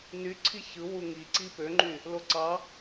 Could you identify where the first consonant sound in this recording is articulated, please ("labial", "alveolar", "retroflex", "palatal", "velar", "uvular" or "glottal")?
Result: alveolar